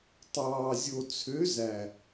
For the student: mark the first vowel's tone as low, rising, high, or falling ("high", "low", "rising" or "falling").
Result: low